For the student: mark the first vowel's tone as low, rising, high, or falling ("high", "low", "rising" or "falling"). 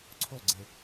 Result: falling